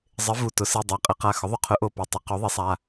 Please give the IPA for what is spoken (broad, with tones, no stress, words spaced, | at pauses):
zˤɪ˩˥ vu˩˧˩tʊ˩˥ si˩˧˩dˤa˩˧˩qʼɪ˩˥qa˩˧˩ xʊ˩˥ðˤʊ˩˥qʰʊ˩˥ʔo˩˧˩ pi˩˧˩tˤɪ˩˥ qo˩˥ðˤi˩˥sˤa˩˧˩